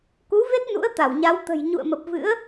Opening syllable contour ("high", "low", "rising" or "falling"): rising